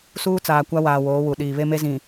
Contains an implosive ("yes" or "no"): yes